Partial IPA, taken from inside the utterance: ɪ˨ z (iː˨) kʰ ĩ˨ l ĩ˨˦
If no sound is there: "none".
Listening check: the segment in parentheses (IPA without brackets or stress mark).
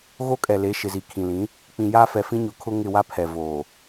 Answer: i˨